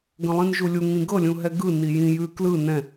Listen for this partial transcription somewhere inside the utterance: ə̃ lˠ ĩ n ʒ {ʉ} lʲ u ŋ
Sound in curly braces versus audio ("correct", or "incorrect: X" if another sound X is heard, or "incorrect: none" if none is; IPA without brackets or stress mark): incorrect: u